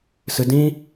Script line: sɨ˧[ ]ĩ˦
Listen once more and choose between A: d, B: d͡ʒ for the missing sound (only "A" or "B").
A